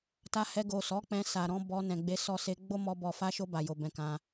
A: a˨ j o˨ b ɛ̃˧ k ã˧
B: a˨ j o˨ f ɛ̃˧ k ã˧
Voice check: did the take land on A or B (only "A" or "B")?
A